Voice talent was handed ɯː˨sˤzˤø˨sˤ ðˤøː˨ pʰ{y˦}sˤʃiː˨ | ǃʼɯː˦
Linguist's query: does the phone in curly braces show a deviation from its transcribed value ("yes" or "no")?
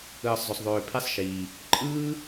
yes